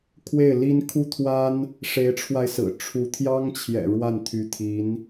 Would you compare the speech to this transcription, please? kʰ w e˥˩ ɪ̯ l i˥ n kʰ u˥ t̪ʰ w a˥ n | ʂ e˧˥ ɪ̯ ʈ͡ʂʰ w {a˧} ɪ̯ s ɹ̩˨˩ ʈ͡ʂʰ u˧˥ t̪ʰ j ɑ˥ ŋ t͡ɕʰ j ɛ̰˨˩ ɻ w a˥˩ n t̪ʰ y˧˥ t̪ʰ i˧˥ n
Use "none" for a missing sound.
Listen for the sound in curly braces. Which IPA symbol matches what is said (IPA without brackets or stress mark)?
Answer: a˧